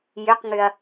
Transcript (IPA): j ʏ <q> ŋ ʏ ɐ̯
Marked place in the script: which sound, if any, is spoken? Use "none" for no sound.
q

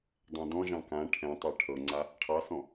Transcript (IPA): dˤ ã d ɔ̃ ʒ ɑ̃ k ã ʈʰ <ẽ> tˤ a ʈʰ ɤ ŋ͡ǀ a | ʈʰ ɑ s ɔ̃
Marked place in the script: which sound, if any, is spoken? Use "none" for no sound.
ɛ̃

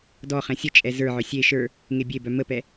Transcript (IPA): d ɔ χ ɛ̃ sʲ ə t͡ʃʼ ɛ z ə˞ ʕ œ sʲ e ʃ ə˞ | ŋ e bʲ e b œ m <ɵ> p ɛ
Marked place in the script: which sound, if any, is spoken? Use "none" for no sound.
ə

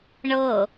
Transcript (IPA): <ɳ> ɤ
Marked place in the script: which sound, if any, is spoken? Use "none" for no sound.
ɳ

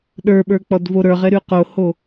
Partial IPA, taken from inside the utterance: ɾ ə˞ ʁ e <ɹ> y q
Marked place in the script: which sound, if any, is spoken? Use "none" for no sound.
ɾ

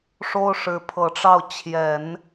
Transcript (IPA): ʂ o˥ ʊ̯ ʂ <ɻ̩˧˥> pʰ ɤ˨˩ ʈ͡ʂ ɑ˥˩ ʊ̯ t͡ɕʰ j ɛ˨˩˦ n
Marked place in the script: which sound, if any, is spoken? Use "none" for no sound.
ɻ̩˧˥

